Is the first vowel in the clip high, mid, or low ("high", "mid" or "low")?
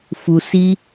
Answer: high